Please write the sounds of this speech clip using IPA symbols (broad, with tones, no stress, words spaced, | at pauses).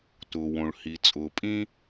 tʊː˩wõ˩ɭ hi˩ t͡sʼʊː˩pʼĩ˥